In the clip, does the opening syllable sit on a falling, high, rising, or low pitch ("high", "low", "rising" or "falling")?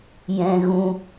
high